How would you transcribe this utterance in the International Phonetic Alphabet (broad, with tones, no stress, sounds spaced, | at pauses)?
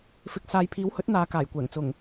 f ɪ˨ k̚ s aː˨˧ j pʰ iː˨˥ w h ɵ˨˥ t̚ n̪ aː˨˧ k aː˨˩ j kʷ ɛː˨˩ ŋ t͡s ʊ˨˩ ŋ